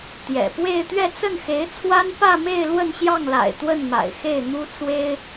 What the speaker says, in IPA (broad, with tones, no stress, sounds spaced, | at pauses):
t̪ j ɛ̰˨˩ p w e˥˧ ɪ̯ t̪ ɥ ɛ˥˧ t͡s ə˥˩ n x e˧˥ ɪ̯ t͡sʰ w a˥ n p ä˥˧ m e˥˧ ɪ̯ l w ə˥˧ n ɕ j ɑ˥˩ ŋ l a̰˨˩ ɪ̯ t̪ w ə˥˩ n m a̰˨˩ ɪ̯ x e˥˩ ɪ̯ n̪ u˥ t͡s w e˥ ɪ̯